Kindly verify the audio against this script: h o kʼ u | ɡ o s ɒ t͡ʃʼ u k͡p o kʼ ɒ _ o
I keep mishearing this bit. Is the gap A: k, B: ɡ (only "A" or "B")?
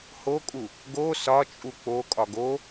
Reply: B